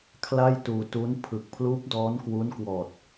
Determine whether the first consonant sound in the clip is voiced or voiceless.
voiceless